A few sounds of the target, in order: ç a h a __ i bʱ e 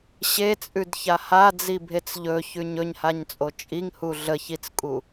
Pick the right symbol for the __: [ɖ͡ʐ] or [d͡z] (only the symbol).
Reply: d͡z